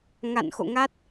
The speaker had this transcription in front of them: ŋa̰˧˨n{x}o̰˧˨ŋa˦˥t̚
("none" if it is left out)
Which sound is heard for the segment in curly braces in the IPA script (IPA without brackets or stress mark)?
x